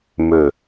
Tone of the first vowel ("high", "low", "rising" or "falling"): low